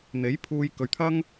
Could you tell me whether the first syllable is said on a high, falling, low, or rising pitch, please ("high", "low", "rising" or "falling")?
rising